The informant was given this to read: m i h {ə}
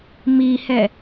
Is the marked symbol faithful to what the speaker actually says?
no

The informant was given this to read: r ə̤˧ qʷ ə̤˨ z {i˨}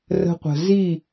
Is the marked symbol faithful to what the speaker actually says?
no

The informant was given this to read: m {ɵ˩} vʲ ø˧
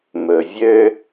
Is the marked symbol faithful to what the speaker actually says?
yes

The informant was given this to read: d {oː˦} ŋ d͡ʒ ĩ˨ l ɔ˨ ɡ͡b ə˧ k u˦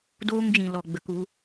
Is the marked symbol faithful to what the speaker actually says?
yes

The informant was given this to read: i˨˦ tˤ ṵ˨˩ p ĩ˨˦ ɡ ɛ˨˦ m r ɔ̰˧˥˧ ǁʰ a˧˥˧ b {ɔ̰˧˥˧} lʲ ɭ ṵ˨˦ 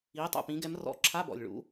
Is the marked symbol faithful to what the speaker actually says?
no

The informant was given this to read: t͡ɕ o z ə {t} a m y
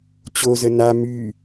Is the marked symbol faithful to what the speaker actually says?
no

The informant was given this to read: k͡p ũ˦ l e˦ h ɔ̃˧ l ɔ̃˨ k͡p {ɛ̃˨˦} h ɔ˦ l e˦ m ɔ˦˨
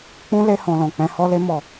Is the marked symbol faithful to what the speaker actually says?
yes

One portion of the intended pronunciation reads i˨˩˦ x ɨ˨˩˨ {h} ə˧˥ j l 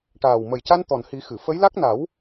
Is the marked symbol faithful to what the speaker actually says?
no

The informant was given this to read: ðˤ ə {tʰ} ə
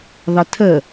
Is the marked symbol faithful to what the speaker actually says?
yes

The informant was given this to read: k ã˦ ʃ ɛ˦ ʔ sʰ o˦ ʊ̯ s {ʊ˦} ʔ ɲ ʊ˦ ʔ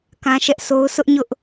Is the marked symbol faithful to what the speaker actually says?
yes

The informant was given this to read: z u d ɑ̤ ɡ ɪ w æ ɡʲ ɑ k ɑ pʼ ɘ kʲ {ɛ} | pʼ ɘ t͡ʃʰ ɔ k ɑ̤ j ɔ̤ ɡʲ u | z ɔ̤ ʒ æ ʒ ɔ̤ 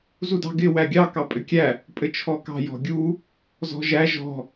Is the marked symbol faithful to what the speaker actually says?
no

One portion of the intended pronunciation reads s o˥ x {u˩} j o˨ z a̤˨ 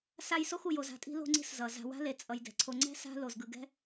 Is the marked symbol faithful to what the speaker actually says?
no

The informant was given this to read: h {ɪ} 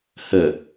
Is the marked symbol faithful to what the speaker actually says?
no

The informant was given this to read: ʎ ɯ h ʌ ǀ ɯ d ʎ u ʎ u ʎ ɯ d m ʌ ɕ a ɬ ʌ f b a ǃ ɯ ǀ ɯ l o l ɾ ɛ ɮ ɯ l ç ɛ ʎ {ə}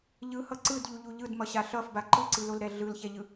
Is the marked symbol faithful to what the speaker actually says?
no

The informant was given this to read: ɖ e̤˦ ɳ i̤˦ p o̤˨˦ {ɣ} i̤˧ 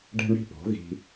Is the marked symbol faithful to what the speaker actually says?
yes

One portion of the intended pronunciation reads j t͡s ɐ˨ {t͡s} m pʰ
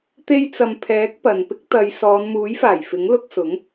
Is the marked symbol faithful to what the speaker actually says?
no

